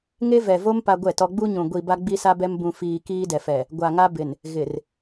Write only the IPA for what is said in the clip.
ŋ e˦ v ɛ˨ v o˦ m p a˦ ɡʷ ɛ˦˨ t ɔ˦ ɡ͡b u˦ ɲ ũ˨ ɡʷ i˨ b a˦ ɡ͡b i˦ s a˦ b ɛ˦ m b ũ˨ f iː˨ k iː˦ d ɛ˨ f ɛ˨ | ɡʷ a˨ ŋ a˦ b ɪ˨ n | ɣ ɪ˨ r

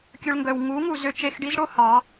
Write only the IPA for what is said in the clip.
kʲ ɵ˧ ɭ ŋ ɡ œ˨ w ŋ u˨˦ ŋ u˨ z ø˧ t͡ʃ e˧ x ɖ i˦ z ɽ o˦ h ɑ˨˦

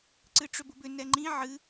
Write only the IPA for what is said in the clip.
ǀ ɨ ʈ͡ʂ ʏ b ʊ b ʏ n ɛ ŋ͡ǃ ĩ ʕ ɨ

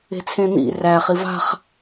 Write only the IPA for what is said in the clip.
e̤ t͡sʰ ẽ n̪ ḭ r æ χ i v a̤ χ

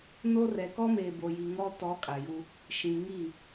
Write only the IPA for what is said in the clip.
n o˦ r ɛ˨ k ɔ˦ m eː˨ b o˨ j i˨ ŋ ɔ˦ t ɔ˨˦ kʼ a˨ j u˦ | ʃ ĩ˨ ŋ i˦˨

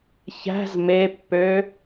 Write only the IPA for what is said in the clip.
ç æ̤ z m e pː ø

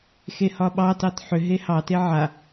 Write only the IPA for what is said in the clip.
x e h ɒ ɓ ɑ t ɑ t ħ ʏ ɦ e h ɑ t e ʕ a

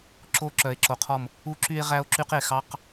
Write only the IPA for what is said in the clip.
ǁ o˦ ǁ œ˨ e̯ ǁ o˨ qʰ ɔ˦˨ m | u˦ ǁ y˦ e̯ ʁ æ˦ o̯ ǁ y˦ q e˨ x ɑ˦ q

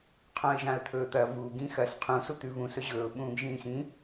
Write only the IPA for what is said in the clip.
qʰ õ ɪ̯ ʒ ã ə̯ t̪ʰ ɵː t̪ ɐ v u ɡ ĩ x ɐ s qʰ ũ s u t̪ ʉ v ũ s ɵ ʑ ɵː ʊ̯ ɓ ũː ɡ ʒ ĩː x ĩ

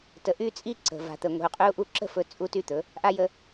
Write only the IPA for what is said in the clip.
t ə˨ ʔ y˦ t͡sʼ i˦ ǀ ə̤˨ v a̤˨ t̪ ə˨ ŋʷ i̤˨ u̯ qʼ y˦ u̯ ʔ u˦ ǁ ə̤˦˨ f ɵ˨ t͡sʼ u˦ t y˦ t̪ ɵ˨˦ | ʔ a˦ j ə˦

